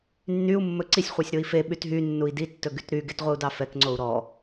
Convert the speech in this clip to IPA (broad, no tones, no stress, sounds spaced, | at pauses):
nː y u̯ mː ɵ ǀ i sʲ χʷ ɛ sʲ ɾ o i̯ f e ɓ y t ɦ y nː u i̯ d i tː ɵ ɡ y t ɾ y ɡ e t ʁʷ i u̯ d ɑ f ɛ k ŋ͡ǀ o u̯ ɾ ɔ